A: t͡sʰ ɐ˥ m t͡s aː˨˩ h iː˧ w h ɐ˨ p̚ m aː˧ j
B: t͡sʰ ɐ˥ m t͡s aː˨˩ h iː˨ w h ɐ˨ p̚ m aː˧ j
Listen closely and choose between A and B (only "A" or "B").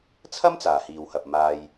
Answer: B